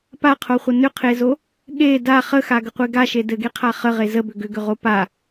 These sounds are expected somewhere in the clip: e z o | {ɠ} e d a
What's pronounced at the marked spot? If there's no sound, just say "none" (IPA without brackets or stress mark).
ɠ